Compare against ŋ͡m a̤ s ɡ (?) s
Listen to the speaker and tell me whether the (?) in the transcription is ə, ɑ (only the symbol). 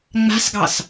ɑ